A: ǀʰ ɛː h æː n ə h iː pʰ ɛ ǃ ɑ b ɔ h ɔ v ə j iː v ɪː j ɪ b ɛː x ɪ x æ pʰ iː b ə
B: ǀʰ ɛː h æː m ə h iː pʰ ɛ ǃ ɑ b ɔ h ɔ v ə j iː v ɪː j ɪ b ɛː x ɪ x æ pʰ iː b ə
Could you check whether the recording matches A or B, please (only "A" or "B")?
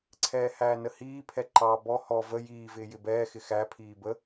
A